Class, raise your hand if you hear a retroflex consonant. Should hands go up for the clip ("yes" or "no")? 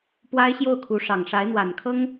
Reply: yes